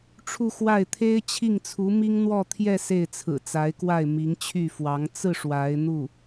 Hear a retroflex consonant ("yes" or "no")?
yes